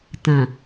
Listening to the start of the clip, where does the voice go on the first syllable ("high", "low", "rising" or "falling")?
low